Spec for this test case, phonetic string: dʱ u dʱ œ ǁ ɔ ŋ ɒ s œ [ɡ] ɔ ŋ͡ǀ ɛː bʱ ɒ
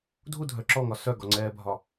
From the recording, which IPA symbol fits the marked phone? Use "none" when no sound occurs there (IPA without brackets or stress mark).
ɡ